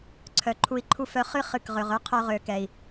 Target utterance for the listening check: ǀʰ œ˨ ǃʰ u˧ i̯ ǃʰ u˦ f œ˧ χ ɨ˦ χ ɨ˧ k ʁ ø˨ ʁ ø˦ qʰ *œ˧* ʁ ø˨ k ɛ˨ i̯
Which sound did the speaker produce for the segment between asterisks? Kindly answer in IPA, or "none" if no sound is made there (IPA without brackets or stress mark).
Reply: œ˧